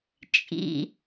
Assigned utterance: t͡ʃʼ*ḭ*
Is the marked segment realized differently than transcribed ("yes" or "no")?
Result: no